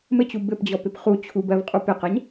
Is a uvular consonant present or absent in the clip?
present